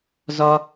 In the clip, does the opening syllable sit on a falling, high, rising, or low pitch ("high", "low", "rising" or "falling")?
high